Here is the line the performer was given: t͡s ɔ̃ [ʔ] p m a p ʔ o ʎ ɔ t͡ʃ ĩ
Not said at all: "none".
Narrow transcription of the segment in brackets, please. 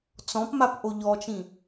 none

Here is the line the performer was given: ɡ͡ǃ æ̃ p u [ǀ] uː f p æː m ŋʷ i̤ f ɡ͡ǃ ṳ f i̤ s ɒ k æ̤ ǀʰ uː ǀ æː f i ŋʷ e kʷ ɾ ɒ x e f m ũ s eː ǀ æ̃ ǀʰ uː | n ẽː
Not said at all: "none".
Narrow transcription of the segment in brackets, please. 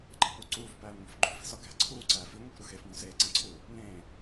ǀ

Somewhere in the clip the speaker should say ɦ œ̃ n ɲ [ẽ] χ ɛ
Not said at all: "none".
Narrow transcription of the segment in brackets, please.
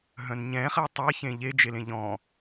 ɛ̃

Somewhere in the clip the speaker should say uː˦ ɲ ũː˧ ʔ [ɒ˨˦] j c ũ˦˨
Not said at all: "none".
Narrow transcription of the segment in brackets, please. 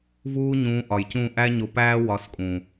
ɒ˨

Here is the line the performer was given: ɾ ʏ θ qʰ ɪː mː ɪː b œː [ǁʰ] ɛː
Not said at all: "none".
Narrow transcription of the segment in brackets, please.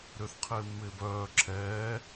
ǁʰ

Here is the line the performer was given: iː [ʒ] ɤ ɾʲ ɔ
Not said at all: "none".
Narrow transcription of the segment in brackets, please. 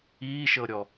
ʃ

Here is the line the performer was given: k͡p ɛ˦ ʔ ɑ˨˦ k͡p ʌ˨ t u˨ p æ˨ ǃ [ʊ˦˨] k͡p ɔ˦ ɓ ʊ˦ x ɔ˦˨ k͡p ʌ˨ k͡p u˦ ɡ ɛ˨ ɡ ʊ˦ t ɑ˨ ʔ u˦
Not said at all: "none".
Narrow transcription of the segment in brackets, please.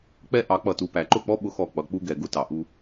ʊ˦˨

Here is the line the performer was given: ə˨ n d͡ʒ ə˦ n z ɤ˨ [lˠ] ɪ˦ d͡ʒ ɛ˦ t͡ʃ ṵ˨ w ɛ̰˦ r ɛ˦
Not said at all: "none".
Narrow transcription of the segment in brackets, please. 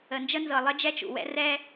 lˠ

